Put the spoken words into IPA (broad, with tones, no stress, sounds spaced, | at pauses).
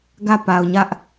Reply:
ɡ ä˦˨ p a˨ ʊ̯ ɲ ä˦ ʔ